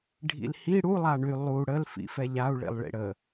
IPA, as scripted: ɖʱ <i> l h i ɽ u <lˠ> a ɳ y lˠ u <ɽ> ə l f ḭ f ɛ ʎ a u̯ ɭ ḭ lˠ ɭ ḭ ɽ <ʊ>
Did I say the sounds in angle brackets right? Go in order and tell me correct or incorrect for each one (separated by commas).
incorrect, correct, correct, incorrect